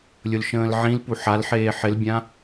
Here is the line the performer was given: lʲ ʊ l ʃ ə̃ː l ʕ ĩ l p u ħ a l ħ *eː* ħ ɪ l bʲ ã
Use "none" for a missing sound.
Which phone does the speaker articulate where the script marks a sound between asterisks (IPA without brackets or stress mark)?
eː